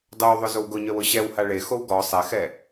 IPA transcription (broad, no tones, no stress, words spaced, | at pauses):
dˤowðˤʊ zowɡʊɲœw ʊɕɛwha ɭexow ɡɔ sˤɛxɛ